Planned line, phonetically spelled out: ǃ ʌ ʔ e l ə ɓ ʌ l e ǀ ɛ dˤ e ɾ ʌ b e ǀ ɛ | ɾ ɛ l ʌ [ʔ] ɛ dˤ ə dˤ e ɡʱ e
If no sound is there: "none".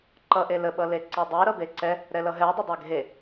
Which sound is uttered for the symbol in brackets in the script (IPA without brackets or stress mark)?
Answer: ɦ